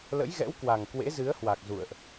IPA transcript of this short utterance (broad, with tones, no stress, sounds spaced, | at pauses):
l ə̰˧˥ j ɣ ɛ̰˧˥ w k w a˨˩ ŋ k w ḛ˧˥ z ɨ˨˦ ə̯ h w a˨˩ k̚ z ṵ˧˨ ə̯ ʔ